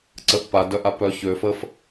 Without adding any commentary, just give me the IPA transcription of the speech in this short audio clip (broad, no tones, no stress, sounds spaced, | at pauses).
ǀ ə ʔ p a d œ ʔ a p œ ç ø f ə f